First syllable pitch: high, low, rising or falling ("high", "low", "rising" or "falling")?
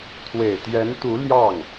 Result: low